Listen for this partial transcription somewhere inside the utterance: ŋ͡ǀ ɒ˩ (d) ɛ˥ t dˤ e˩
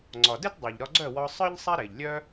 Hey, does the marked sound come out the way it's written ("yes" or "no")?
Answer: yes